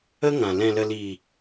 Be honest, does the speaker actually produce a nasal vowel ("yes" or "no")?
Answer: yes